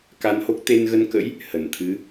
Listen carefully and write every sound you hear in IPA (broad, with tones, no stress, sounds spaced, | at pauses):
k a˧ n h o˦˥ k̚ t̪ e˧ n ɣ ə˧ n k ə̰˧˥ j | h ə˧˩ n t̪ʰ ɨ˨˦